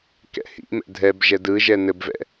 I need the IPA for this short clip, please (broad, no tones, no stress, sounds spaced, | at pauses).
k ɛ̰ h ḭ m ɛ̰ dʱ ɛ b ʒ ɛ d ɯ ʒ ɛ n ɘ b v ɛ̰